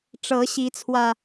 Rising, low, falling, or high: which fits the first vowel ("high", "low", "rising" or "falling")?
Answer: rising